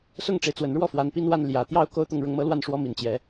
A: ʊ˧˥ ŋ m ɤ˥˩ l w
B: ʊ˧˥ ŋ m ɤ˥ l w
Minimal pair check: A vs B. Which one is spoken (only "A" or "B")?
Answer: B